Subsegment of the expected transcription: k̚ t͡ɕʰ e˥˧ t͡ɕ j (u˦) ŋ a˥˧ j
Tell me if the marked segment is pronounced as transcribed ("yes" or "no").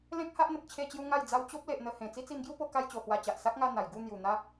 yes